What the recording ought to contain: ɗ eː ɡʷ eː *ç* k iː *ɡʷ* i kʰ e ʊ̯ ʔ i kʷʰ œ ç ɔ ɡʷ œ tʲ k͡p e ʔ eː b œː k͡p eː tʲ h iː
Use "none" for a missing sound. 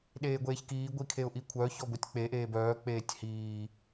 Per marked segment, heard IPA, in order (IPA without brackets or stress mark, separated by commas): ç, ɡʷ